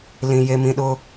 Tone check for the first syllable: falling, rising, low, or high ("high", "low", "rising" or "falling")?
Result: high